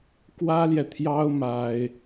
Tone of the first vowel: high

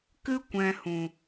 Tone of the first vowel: high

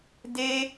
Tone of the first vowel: high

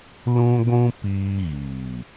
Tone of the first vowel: high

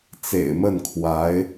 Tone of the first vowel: low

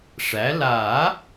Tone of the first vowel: rising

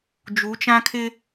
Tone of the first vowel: rising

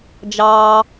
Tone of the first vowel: low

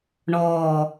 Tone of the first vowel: low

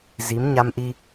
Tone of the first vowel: rising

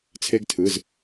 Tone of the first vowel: high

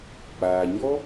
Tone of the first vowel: low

